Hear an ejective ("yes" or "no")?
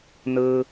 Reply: no